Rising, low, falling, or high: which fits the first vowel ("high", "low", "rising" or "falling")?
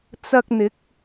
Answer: high